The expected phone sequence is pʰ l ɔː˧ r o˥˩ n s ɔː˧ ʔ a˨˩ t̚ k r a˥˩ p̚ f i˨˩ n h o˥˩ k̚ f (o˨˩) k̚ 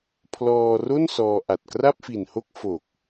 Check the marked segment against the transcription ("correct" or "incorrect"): correct